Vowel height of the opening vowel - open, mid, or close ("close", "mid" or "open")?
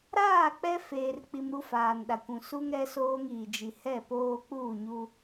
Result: open